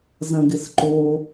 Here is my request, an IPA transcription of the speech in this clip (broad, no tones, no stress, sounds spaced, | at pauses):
z ɐ̃ ɡ ɪ s ǃ o